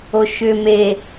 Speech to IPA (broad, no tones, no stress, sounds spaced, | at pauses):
o ʃ ʏ m e